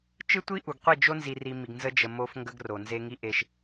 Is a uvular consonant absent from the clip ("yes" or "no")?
no